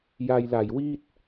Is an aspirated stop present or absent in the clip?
absent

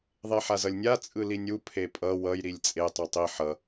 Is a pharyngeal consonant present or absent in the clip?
present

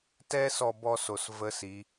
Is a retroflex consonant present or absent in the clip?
absent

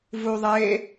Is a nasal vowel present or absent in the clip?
absent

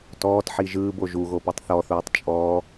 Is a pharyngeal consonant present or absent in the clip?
present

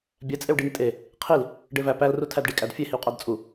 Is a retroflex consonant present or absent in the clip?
present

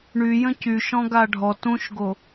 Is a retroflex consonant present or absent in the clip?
present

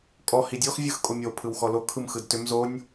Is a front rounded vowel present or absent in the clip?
present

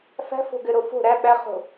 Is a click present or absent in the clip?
absent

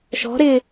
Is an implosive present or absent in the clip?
absent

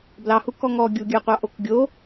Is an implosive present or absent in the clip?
absent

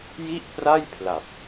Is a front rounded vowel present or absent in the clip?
absent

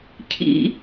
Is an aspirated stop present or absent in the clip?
present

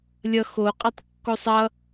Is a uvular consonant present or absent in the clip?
present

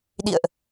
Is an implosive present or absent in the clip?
present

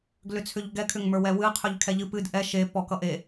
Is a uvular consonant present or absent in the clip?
present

